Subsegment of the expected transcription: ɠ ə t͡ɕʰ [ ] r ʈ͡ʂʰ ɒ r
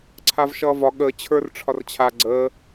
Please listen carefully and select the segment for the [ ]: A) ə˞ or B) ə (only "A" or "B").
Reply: A